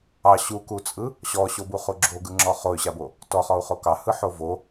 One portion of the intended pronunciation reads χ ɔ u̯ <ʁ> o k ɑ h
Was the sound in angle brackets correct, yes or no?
no